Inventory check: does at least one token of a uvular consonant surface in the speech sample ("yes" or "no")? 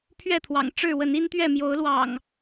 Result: no